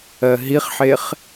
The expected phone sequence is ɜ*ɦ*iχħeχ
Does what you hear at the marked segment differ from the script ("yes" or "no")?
no